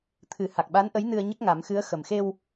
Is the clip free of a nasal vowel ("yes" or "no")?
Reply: yes